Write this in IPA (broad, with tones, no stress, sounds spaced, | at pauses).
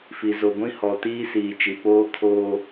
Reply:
f i˨ z o˨ ɡʷ ĩ˦ h ɔ˨ t iː˦ s iː˨ t͡ʃ i˨ p oː˦ kʰ oː˦